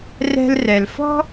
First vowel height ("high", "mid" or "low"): mid